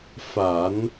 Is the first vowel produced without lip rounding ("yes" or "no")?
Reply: yes